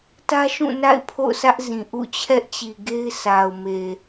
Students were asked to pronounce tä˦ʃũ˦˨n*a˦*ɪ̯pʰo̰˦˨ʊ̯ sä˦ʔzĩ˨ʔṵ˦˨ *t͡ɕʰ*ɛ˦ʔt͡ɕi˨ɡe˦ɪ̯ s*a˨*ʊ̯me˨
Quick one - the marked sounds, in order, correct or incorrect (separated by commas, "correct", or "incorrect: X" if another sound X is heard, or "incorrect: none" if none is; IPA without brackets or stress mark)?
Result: incorrect: a̰˦˨, correct, correct